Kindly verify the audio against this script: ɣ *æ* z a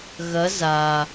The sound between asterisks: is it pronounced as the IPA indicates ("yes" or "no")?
no